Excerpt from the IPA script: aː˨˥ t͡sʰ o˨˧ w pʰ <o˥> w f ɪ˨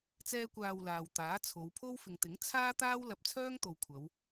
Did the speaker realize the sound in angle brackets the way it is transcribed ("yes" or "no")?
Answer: yes